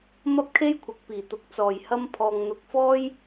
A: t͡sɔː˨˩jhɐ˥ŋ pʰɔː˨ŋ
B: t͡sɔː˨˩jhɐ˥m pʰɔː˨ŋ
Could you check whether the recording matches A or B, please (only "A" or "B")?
B